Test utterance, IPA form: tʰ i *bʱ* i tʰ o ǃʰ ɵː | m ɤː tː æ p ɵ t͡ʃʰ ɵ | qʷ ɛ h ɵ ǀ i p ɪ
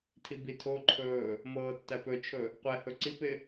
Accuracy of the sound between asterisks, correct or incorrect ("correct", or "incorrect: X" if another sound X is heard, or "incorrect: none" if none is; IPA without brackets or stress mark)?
incorrect: b